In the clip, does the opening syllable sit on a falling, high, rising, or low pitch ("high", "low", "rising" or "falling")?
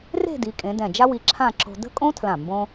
falling